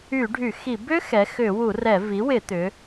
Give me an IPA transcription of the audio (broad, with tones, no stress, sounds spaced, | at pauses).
y˧˩˧ ɖʱ y˧˩˧ x i˧˩˧ b ʏ˦˥ x ɛ˩˧ x ʏ˧˩˧ w u˧˩˧ r ɛ˧˩˧ v i˩˥ w ɪ˧˩˧ t̪ ʏ˩˧